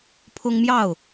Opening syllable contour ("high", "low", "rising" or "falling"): high